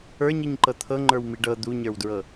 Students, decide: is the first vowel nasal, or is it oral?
oral